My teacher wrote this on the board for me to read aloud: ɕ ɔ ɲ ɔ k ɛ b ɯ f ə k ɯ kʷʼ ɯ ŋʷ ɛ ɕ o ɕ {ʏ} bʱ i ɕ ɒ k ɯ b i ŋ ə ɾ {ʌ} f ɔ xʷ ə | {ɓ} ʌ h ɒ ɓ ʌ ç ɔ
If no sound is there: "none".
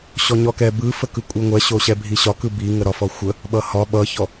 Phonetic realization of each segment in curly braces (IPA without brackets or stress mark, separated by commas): ɛ, ɒ, ɓ